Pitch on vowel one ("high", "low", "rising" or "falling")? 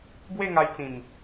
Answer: falling